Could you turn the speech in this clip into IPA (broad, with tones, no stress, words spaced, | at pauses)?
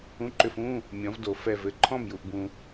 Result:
ũ˧˥˧ǃʏ˧˥˧fũ˧˥˧ | mʲɔ̃˨˥v do˨fɛ˥˨v ɘ˥˨ǃʰɔ̃˥˨mju˨ʔbũ˨